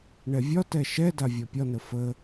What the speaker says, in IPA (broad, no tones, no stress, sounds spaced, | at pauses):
ɳ ɛ vʲ ɒ t ɛ ʃ ɛ d a vʲ ɒ pʲ ɒ n ə f ə